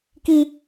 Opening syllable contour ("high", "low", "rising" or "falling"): high